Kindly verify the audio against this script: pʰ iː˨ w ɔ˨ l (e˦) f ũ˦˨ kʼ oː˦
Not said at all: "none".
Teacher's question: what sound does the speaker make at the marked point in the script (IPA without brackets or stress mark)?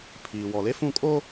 e˦